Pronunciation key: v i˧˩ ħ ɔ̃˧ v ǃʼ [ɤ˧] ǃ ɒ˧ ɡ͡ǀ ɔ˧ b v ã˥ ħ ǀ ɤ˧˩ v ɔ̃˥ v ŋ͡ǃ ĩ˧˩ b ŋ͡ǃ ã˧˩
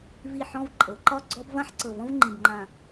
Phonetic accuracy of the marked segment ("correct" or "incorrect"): incorrect